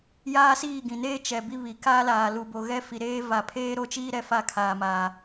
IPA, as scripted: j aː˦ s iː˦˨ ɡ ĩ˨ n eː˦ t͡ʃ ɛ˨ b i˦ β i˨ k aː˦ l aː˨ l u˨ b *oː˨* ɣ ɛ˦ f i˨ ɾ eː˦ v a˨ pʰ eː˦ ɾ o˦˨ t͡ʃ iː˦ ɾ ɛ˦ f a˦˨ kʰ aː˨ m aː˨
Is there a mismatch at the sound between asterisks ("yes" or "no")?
yes